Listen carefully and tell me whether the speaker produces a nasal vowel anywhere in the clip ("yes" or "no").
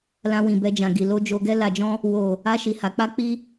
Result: yes